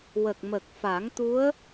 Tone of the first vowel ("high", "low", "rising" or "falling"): low